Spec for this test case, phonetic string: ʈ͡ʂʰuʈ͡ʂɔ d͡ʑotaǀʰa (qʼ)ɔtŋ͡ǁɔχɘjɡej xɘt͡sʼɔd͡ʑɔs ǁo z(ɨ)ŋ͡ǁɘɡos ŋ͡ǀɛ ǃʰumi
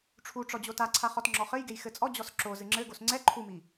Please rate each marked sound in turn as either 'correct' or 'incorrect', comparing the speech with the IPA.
incorrect: χ, correct

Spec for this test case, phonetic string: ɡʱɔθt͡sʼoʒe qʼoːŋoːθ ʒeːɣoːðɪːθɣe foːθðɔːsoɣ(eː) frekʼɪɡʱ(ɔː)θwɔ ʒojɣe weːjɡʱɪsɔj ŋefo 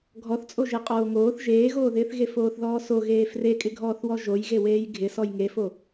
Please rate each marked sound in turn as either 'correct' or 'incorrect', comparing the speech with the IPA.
correct, correct

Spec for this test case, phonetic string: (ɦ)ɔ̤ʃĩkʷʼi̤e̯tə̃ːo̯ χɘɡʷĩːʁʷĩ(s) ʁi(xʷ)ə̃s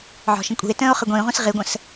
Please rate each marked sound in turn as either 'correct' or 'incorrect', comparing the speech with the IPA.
incorrect: ʕ, correct, incorrect: ɡʷ

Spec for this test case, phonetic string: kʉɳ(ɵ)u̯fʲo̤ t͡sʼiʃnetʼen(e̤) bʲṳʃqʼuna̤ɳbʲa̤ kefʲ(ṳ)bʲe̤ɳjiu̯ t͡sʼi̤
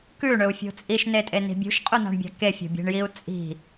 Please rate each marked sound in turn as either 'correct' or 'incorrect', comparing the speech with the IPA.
correct, incorrect: i̤, incorrect: o̤

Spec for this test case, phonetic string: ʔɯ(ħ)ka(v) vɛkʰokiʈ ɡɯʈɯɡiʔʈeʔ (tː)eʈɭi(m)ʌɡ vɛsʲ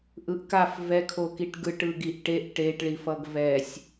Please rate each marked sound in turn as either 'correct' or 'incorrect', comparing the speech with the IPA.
incorrect: ʔ, incorrect: f, incorrect: ʈ, incorrect: f

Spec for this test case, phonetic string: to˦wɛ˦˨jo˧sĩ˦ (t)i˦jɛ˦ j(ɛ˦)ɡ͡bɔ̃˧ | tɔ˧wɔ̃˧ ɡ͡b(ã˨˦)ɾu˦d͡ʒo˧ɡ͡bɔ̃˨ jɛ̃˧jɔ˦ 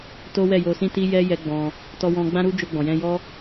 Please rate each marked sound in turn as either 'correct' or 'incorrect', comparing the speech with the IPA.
correct, correct, incorrect: ã˦

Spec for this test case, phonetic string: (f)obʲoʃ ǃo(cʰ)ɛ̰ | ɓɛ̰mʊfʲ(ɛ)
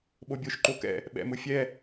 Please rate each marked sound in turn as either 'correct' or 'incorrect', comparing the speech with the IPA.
incorrect: ɓ, incorrect: k, correct

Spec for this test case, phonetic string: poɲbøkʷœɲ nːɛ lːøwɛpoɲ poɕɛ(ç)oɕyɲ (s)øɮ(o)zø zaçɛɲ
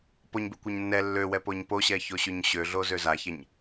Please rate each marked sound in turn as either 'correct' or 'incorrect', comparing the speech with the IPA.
correct, incorrect: ɕ, correct

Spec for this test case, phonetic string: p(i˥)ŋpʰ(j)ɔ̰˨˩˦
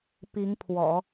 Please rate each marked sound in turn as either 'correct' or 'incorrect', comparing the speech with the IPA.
incorrect: i˧˥, incorrect: w

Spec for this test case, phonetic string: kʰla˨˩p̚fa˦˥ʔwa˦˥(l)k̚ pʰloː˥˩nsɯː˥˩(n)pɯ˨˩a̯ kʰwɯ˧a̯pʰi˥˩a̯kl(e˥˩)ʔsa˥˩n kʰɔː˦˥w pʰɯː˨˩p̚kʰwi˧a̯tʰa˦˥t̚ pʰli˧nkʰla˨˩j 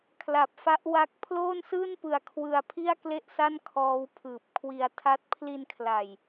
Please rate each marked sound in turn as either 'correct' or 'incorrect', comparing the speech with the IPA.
incorrect: none, correct, correct

